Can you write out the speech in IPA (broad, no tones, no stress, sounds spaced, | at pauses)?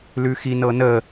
l ʉ x i n ɤ n ə